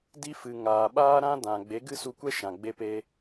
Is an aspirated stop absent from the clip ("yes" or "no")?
yes